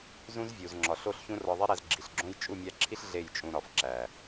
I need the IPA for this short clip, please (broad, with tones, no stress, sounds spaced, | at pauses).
z ũ˦ z vʲ u˨ z ŋ͡ǁ ɒ˨ ɬ o˦˨ ɬ ç ũ˦ r ɒ˧ ðˤ i˦ ɾ æ˧ z ɡ͡ǁ i˨ ɬ ɡ͡ǁ õ˦ j t͡ʃʼ u˦˨ mʲ æ˧ ǁʰ i˦ ɬ ɮ e˦˨ j t͡ʃʼ ũ˧ ɾ ɒ˨ f ǁ æ˨